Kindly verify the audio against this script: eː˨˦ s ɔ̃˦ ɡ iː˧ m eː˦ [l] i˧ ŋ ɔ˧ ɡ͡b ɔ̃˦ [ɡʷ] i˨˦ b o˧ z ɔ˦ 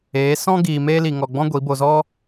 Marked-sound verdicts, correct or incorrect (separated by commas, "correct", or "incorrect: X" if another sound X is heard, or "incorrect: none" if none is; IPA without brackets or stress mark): correct, correct